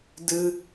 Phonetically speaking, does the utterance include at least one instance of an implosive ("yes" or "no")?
no